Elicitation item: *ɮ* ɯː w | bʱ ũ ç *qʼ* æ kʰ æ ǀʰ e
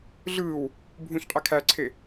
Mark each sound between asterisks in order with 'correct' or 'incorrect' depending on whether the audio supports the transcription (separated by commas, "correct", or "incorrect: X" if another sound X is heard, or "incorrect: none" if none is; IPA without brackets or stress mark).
correct, correct